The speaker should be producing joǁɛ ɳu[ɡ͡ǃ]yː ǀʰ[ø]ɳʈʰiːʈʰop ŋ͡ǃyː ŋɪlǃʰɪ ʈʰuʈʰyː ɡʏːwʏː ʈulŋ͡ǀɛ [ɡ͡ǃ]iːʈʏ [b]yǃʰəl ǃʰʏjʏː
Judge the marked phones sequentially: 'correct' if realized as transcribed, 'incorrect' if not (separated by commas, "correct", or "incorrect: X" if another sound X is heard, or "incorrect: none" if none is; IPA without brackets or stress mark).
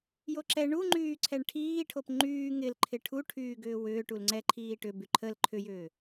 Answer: incorrect: ŋ͡ǃ, incorrect: ɛ, incorrect: ǃʰ, correct